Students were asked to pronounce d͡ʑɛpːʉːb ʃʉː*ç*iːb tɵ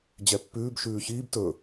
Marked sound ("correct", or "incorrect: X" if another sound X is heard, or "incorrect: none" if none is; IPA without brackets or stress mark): correct